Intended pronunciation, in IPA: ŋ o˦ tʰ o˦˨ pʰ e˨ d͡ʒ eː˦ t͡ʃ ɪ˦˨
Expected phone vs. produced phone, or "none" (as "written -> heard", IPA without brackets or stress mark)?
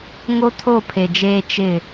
none